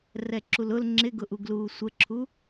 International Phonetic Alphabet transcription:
rɛǁulʊl ŋ͡ǁɪɡʊʔuɡluː sʷəǁʰu

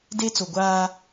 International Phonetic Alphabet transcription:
de˦t͡so˨ɡʷaː˦

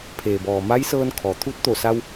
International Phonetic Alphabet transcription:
pʰeː˩bɔː˩ ma˧˥jsɤː˧n kʰɔː˩t̪ʰu˧˥t̚t̪o˧˩sa˧w

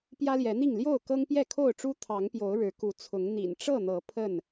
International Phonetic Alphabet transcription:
pjä˦ljɛ˨˦n̪i˥˨ŋ ljo˥˨ʊ̯ kɤ˦ŋpjɛ˥˨kʰo˥˨ʊ̯ʈ͡ʂu˦ t̪ʰɑ˨˦ŋpjo˨˦ʊ̯ ɻɻ̩˨˦ku˨˦ t͡sʰʊ˨˦ŋn̪ḭ˨˩n ʈ͡ʂɤ˥˨n̪ɤ˨˦ pʰə˥˨n

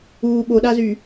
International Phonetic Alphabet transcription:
uː ɓoɗazy

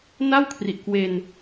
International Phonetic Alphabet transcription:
na˥˩w kʰri˨˩ʔkwe˧n

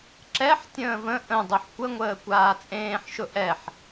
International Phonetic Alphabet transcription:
ǁɛħ tʲə̃ːvə̃ ʔə̃dˤoħ kʷəŋʷəː kʷaːt͡sʼẽːħ ʃʊʔɛħ

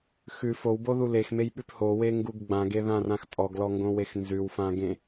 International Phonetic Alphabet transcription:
xʉ fowboðu lexmejɓʉp howeŋɡuɡ ɡ͡bãɡeðãrãx tʼɔɡlɔŋɡõwex nzʉwfãɡẽ

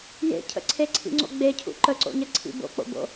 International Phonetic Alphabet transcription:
jḛcʰə̰ ǀʰeǀʰḭŋ͡ǀo̰ ɡ͡becʰṵ ǃəǀo̰ɲəǀʰḭ bo̰k͡po̰bo̰

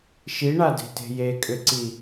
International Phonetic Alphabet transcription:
ʃiɳade̤te̤ jekʼʏǀi

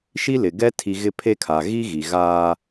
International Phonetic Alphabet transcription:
ʃi˦lɪ˨ɡɛ˦ tʰi˨ ɣɪ˦pʰe˦kʰa˨ ɣi˦ɣi˨ɣaː˦

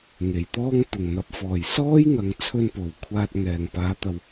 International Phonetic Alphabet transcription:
ŋe˨˩jt̪ɔː˥ŋ t̪ʊ˨˩ŋn̪ɐ˨˥p̚fɔː˨˩j sɔː˥jŋɐ˨ŋt͡sʰɵ˧n po˨˩wkʷʰaː˧t̚ ŋɛː˨˩ŋpaː˨˥t̪ɐ˨w

